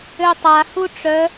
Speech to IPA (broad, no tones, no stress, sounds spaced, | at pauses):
ø tˤ a h u ʈ͡ʂ œ